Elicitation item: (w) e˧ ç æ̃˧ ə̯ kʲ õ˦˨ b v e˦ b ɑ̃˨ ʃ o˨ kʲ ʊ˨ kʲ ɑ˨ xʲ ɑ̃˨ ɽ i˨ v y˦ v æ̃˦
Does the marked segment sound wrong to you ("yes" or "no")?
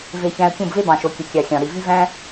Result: yes